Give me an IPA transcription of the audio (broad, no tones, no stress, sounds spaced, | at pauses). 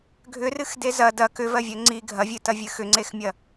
ɡʱ ʏ r ɨ x d e z ɐ d ɐ k ʏ v ɜ vʲ ɜ ŋ͡ǀ i ɡʱ ɐ vʲ ɨ t ɐ vʲ ɨ x ʏ ŋ͡ǀ e x mʲ ɐ